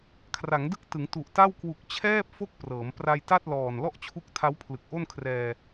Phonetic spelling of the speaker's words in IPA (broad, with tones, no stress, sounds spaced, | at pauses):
kʰ r a˩˦ ŋ d ɯ˦˥ k̚ t ɯ˩˦ ŋ t u˨˩ ʔ t a˥˩ w k w u˨˩ k̚ t͡ɕʰ ɛː˥˩ p̚ f o˥˩ k̚ p r ɤː˩˦ m p r a˧ j t a˥˩ t̚ l ɔː˨˩ n l ɔ˥˩ ʔ t͡ɕʰ u˦˥ k̚ tʰ a˦˥ w pʰ l ɯ˨˩ k̚ ʔ o˥˩ n kʰ r ɛː˧